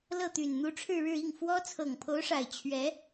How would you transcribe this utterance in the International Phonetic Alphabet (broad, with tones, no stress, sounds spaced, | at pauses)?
l ɤ˥˩ t̪ y˨˩ n n̪ u˧˥ ʈ͡ʂʰ ɻ̩˥˧ ɻ ɻ̩˥˧ i˥˩ ŋ f w ɔ˥ t͡sʰ ɤ˨˩ ŋ pʰ o˧˥ ʊ̯ ʂ a˨˩ ɪ̯ t͡ɕʰ ɥ ɛ˧˥